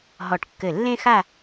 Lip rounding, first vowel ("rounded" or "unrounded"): rounded